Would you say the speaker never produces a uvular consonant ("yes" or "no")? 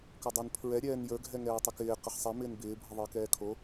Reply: no